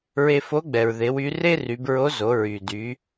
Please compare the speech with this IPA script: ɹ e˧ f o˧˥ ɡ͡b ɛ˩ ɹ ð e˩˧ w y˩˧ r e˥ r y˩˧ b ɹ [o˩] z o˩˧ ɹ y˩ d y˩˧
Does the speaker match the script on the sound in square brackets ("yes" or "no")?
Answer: no